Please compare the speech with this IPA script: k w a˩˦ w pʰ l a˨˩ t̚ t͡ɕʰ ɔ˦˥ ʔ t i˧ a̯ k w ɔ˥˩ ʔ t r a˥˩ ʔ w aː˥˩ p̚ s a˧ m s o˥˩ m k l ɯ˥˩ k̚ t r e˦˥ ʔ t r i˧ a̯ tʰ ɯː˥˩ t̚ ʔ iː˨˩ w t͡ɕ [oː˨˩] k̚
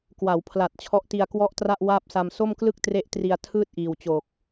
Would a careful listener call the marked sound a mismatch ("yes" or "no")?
no